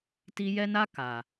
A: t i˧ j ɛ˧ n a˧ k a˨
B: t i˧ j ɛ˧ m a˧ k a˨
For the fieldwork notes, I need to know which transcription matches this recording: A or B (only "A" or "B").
A